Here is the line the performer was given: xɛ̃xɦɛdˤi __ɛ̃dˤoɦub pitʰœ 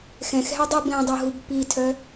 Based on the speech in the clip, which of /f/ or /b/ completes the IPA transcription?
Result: b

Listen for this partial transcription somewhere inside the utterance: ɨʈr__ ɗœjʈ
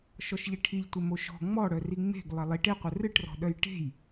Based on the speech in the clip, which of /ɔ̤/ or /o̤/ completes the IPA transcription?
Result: ɔ̤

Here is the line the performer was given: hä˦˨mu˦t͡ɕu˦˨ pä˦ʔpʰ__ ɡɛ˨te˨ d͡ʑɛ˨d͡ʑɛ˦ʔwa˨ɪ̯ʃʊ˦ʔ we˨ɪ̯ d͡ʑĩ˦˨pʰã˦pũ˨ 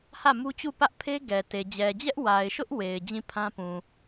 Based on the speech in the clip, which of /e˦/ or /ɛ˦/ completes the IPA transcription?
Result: e˦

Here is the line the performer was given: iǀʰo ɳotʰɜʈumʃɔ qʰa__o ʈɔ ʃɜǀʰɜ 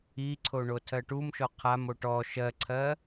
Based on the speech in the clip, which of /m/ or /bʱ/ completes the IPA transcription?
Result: m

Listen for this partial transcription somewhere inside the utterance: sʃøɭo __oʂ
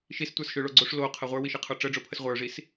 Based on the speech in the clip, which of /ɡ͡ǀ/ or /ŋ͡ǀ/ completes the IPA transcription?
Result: ɡ͡ǀ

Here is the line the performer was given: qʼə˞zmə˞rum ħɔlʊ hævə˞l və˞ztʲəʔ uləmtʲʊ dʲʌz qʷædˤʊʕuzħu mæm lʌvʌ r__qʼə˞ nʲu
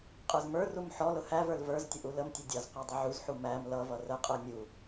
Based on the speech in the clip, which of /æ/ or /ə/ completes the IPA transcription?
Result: ə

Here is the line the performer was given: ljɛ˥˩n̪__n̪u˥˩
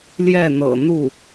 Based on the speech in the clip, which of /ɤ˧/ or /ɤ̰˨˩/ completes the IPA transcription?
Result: ɤ̰˨˩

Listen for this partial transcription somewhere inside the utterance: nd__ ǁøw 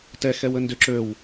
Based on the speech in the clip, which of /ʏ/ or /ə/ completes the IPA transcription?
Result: ʏ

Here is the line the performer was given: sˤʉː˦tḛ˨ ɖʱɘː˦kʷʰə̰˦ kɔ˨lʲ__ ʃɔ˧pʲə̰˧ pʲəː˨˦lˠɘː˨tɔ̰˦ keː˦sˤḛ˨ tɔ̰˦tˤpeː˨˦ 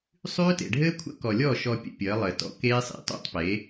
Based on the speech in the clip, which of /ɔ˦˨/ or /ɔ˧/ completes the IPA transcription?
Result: ɔ˦˨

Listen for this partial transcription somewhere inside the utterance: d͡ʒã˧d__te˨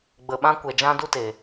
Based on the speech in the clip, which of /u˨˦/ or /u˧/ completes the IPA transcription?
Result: u˧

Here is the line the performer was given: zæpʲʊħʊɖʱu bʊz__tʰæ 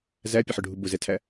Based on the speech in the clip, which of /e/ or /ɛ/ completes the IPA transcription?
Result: ɛ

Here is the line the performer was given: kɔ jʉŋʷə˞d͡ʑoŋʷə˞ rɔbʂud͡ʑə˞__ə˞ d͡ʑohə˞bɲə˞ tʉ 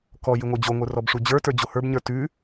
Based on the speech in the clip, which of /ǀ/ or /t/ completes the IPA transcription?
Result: t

